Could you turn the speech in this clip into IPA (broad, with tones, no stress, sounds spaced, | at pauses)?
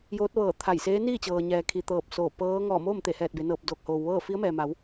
j oː˧˥ t̚ ʋ ɤː˧˩ t̪ʰ a˧˩ j s eː˧˥ n iː˥˨ t͡ɕ ɤː˩ ɲ ɛː˩ kʰ i˩ t̪ ɤː˧˩ p̚ s oː˧˩ p ɤː˧˥ ŋ ɔː˧˩ m oː˥˨ m t̪ e˧˩ h ɛː˧˩ t̚ b e˩˧ n ɤː˧˩ p̚ d oː˧˩ k̚ h oː˩ w ʋ ɤː˥˨ f i˧˥ ə̯ m ɛː˩ m a˩˧ w